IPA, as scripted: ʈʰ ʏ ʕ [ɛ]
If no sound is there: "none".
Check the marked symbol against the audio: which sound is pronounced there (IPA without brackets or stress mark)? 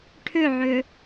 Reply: ʏ